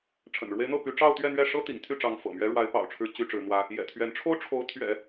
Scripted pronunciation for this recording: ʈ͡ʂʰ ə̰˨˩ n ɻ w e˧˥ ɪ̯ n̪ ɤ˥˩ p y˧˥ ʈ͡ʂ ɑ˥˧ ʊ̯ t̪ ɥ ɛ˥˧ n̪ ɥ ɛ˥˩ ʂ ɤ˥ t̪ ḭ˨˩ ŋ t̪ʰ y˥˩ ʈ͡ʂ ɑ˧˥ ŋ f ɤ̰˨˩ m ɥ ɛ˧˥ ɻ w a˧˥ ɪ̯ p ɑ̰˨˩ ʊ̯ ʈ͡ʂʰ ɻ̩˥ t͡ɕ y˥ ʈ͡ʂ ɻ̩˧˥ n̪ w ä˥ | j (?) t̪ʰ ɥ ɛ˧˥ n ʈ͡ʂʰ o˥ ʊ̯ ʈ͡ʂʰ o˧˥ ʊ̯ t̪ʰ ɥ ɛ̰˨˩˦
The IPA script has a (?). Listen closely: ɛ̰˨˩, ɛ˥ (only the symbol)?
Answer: ɛ̰˨˩